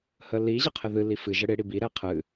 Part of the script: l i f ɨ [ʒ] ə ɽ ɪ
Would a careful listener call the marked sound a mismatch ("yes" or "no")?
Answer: no